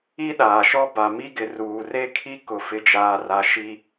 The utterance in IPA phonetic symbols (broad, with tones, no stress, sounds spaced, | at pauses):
i˦ ɗ aː˨ ʃ ɔ˦ b a˨ m i˦ ɡ ɪ˨ r uː˨ r e˦ kʰ i˦ k ʊ˦˨ f ɪ˦ d͡ʒ aː˦ r a˦ ʃ i˦